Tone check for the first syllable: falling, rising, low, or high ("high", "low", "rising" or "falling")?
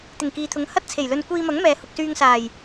low